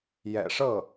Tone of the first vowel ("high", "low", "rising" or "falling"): low